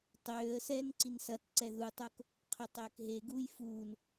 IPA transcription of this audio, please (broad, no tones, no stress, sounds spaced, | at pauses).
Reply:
tˤ øː ə̯ s ɛː n ǀ i n s ɐ t ǀ ɛ ð u tˤ o k | qʰ ø tˤ øː k ɦ e ɡ uː j f uː n